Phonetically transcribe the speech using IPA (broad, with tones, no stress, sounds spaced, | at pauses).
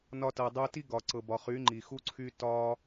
n ɒ˧ t ɤ˨ dˤ u˧ t i˦ ɡ ɒ˨ ǀ ɤ˨ b ɒ˨ χ y˨˦ ŋ͡ǃ i˨ x u˦ ǀʰ y˦ t ɒ˦